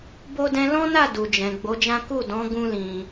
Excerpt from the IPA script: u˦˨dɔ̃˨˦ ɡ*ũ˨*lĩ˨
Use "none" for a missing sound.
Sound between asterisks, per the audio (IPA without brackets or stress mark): ũ˧